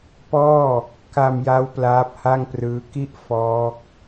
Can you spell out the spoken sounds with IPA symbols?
p ɔː˥˩ | k a˧ m j a˦˥ w p l aː˦˥ p̚ h a˥˩ ŋ p r ɯː˦˥ k i˥˩ ʔ f ɔː˦˥ k̚

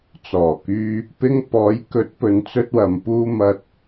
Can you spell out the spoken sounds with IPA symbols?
t͡s ɔː˨˩ k yː˧ | p ɪ˧ ŋ p ɔː˨˥ j k ɵ˨˥ t̚ p ɵ˨ n t͡s ɵ˥ t̚ w ɐ˧ m p uː˥ m ɐ˧ t̚

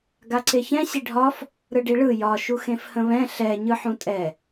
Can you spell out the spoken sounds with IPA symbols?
ɡ a ǀ e ç ɛ̃ ɕ i ɖʱ ɒ f | ɾ ɯ ɖ i ɭ ɯ j ɒ ʃ u x ẽ f h ə̃ β ɛ̃ ɬ ɛ ɲ ɯ ħ ũ tʼ ɛ

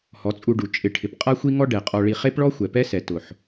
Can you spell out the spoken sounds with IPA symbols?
h ɔ˨˦ t͡sʼ u˧ ɖ u˨ t͡ʃʼ ɪ˨ ʈʰ ɪ˨ p qʼ a˦ xʷ i˦ ŋ ɔ˦ ɖ ɛ˨ qʼ ɔ˧ ɭ i˧ χ e˦ p ɭ ɔ˦ xʷ ɛ˨ p ɛ˦ s ɛ˨ t ʊ˨ ħ

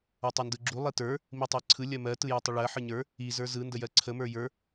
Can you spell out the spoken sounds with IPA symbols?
ə˞ tˤ ə˞ n d ɯ ɡ͡ǁ u lˠ i t ə˞ | m i tˤ ɜ ǀʰ ɯ lʲ ɜ m ɜ t ɯ j ə˞ tˤ ə ɭ ɜ ħ ɯ ɲ ə˞ | i z ə˞ z ɯ n d ə j ɜ ǀʰ ə m ə˞ j ə˞

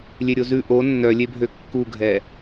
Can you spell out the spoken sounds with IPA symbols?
lʲ e ɾʲ o z ʉ ʔ o nː œ lʲ e bʱ ø kː u ɡʱ ɛ

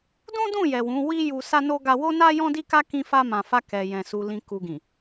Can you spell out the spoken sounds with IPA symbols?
d ũ˦ d ũ˦˨ j ɛ˨ w ũ˨˦ w i˦ j u˧ s a˦ n o˦ ɡ a˧ w o˦ n a˦ j ɔ̃˦ d i˦ k a˦ k ĩ˧ f a˧ m ã˨ f a˧ k ɛ˨ j ɛ̃˨ s u˨ l ĩ˨ k u˨ ɡ ĩ˨

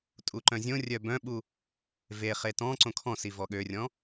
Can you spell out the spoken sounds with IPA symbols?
tʼ u ǃ œ̃ zʲ õ rʲ œ b œ̃ ɓ u | v e χ e t ɔ̃ ǀ õ kʰ ɔ̃ s i v ɔ ɠ ø rʲ ɔ̃

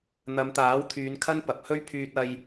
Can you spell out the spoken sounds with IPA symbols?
n̪ ɐ˨˧ m t̪ aː˨˥ w t̪ʰ yː˨˧ n kʰ ɐ˥ n p ɐ˨ p̚ h ɵ˥ ɥ pʰ yː˧ t̚ ɐ˧ j

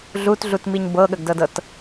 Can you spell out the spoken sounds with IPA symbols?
ɮ u t ɮ u t m i ɲ b ɤ ɠ ə ɡ d ɤ d ɤ t

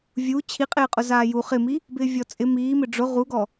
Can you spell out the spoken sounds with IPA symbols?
vʲ u t͡ɕʰ i qʼ ɪː qʼ ʊ z aː j u χ ɪ m i | b ɪː vʲ ɔ t͡sʼ ɪ m iː m ɪ ɖ͡ʐ ʊ ʁ u ɡ ɔ

